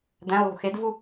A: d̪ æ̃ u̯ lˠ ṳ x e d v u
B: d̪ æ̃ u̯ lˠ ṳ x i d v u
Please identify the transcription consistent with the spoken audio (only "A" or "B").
A